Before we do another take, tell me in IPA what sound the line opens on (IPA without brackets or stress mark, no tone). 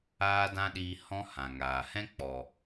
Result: aː